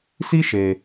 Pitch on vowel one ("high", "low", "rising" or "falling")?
high